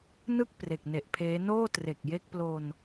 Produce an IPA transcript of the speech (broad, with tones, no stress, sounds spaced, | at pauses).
n ɯ˥˩ k̚ p r e˨˩ k̚ n e˨˩ ʔ pʰ eː˦˥ n oː˥˩ t r e˨˩ k̚ j e˦˥ k̚ p l o˧ n